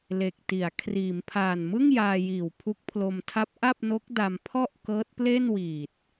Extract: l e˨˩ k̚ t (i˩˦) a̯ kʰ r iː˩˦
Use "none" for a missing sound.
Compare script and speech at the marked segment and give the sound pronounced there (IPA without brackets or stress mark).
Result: i˩˦